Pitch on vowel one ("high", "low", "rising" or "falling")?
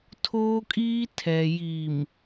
high